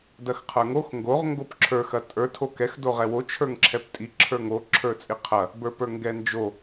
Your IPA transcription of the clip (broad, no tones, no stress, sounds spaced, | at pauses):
d ɐ x qʰ ə˞ ŋ o x ŋ ɡ o ʁ ŋ ɡ o p ǁʰ ə˞ x ɐ tʼ ə˞ tʰ o k ɛ x d o ʁ ɛ w o t͡ʃʰ ə˞ ŋ ǁʰ ɛ p tʼ i ǁʰ ə˞ ŋ o ǁʰ ə˞ t͡sʼ i qʰ ɐ | b ə˞ p ə˞ ŋ ɡ ɛ n d͡ʒ o